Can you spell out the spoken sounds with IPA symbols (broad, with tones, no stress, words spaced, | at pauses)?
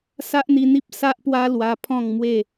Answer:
sa˦ʔn̪i˧n̪i˦p̚ sa˦ʔpwa˦ lwa˧pʰɔ̃˥˧ŋ mwe˥˧